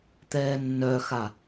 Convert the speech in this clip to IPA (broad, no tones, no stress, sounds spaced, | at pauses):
t̪ ɛː nː œ x a